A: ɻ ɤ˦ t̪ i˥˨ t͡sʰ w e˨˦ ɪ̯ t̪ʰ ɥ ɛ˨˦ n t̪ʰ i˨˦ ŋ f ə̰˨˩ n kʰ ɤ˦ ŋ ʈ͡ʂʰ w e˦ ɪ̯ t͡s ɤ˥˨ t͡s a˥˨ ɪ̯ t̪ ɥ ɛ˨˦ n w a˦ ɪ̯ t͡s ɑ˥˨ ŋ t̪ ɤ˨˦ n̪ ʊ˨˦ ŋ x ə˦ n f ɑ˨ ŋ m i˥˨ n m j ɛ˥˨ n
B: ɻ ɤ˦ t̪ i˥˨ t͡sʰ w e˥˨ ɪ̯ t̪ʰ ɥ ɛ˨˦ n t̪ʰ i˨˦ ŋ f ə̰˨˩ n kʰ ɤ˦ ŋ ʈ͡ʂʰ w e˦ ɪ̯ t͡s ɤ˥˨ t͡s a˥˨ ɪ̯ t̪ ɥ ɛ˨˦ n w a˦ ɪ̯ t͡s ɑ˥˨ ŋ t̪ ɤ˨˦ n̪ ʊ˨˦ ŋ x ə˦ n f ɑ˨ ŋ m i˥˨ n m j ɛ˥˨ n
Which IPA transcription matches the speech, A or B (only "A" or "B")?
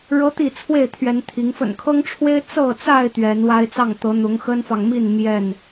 B